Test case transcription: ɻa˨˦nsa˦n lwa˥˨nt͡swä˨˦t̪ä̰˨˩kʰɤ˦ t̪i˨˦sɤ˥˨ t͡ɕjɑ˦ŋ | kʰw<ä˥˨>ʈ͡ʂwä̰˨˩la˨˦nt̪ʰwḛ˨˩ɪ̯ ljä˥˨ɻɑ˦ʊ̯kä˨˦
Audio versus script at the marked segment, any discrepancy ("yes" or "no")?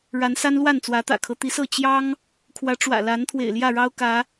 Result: yes